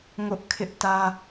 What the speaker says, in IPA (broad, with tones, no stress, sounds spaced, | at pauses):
ŋ ʊ˦ ʔ kʰ ɪ˦ ʔ t ä˦